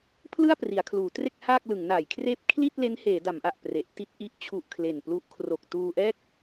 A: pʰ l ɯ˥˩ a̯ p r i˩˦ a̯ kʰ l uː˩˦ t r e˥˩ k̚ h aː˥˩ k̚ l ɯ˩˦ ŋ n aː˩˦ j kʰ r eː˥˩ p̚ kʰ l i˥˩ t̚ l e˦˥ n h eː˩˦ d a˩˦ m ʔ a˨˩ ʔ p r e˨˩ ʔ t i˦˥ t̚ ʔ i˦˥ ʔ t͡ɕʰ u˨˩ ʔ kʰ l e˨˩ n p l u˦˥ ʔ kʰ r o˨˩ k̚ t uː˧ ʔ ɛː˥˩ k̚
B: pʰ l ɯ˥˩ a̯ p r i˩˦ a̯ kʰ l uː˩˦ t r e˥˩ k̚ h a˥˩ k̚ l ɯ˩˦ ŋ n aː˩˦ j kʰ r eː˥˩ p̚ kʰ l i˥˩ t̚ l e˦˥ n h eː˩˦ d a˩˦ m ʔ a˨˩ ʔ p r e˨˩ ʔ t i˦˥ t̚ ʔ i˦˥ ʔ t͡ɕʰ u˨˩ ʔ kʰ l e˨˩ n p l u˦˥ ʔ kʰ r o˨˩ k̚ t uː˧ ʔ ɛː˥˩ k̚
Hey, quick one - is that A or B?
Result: A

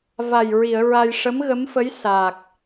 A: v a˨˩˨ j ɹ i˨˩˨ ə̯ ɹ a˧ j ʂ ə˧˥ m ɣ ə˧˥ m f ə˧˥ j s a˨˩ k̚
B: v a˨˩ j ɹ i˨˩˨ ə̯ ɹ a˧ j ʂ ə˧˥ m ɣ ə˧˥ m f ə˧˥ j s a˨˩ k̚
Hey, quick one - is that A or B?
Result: B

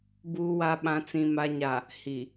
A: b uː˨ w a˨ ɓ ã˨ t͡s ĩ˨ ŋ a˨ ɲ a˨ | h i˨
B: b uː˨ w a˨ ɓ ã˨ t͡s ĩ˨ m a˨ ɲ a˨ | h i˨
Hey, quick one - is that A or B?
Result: B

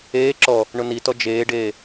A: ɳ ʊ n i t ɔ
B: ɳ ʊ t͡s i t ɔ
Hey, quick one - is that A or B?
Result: A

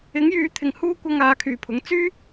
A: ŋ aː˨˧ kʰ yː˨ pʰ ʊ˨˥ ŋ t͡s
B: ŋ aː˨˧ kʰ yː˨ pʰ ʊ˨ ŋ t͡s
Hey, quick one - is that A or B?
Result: A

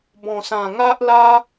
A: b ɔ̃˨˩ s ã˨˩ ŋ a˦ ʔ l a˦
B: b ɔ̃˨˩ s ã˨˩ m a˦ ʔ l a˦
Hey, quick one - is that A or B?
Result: A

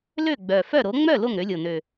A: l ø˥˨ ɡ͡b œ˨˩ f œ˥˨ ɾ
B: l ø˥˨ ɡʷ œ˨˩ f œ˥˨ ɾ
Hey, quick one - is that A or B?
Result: A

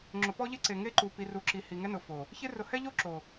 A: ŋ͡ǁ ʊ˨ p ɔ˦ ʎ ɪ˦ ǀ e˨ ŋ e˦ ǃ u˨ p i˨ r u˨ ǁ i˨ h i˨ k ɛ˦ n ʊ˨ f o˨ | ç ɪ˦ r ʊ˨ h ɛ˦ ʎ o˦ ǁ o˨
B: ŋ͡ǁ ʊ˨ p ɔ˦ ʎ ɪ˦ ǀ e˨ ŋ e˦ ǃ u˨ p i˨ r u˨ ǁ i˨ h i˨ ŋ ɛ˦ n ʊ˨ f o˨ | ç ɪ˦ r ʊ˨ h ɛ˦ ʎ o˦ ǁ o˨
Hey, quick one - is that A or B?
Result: B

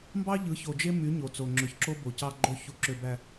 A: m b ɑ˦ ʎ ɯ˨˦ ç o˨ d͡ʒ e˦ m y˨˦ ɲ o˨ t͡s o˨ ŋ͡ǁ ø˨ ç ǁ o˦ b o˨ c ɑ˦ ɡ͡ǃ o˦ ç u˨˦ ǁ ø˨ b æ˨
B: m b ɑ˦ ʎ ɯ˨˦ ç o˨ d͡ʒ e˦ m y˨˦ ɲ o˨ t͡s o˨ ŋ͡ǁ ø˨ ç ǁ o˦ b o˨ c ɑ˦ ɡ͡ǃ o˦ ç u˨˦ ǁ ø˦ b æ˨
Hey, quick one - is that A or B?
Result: A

